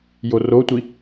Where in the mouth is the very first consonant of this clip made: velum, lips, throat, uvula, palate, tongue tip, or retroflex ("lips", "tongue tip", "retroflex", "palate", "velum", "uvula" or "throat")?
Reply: palate